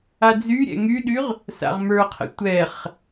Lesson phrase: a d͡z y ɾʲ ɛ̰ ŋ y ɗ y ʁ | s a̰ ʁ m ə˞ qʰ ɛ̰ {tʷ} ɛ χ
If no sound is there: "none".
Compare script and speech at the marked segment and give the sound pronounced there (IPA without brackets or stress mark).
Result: tʷ